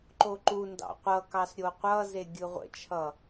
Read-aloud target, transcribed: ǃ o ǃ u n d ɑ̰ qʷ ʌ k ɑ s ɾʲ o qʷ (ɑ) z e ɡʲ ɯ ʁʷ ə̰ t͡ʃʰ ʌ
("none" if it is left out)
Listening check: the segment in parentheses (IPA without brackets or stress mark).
ʌ